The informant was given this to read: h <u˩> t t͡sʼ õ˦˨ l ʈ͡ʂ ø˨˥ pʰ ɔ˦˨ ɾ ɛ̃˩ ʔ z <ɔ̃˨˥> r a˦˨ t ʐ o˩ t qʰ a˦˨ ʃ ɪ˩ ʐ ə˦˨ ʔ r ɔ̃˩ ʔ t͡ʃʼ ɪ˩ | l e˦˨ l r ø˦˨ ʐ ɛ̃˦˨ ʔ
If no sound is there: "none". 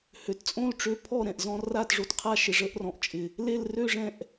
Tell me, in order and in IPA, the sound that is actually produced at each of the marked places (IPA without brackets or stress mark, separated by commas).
ø˩, ɔ̃˦˨